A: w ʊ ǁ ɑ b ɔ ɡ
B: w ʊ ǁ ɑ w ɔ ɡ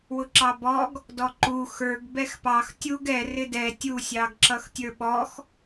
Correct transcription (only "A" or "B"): A